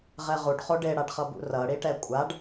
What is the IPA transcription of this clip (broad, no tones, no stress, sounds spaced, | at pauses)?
ʁ ɛ ʁ u ɖ χ o ɖ e ɽ a ɖ χ ʌ b ṵ r ʌ ɽ i ʈ ɛ kʷʼ a ɖ